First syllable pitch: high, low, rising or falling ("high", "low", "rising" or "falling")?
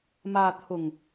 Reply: low